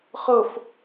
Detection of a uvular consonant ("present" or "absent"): present